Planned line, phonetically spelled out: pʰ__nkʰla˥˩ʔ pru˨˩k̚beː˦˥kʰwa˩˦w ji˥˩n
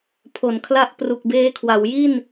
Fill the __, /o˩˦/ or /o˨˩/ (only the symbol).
o˩˦